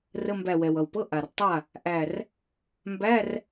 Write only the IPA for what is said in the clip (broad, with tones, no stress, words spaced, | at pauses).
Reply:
rə˧˥˧mbæ˧˩wɛ˩w ʌ˩wpɤ˧˥˧ ʔa˩r tˤa˥˩ | ʔæ˧˩r | mbæ˧˥˧r